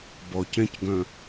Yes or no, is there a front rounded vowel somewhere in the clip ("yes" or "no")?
yes